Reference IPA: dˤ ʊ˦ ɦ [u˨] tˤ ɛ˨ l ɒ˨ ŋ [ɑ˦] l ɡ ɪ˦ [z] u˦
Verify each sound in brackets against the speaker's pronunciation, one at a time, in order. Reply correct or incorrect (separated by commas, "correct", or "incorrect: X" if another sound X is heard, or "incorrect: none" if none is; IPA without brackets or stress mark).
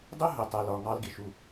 incorrect: ʊ˨, correct, incorrect: ʃ